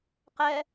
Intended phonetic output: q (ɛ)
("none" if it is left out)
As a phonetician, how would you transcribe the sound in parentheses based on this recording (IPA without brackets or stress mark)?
ɛ